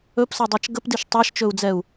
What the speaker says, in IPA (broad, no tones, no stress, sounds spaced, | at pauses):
ɵ p s ɤ dˤ æ t͡ʃ ɡ ə p d i ʃ tˤ a ʃ t͡ʃ ɵ u̯ d͡z ɛ u̯